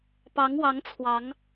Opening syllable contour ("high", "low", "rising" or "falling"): rising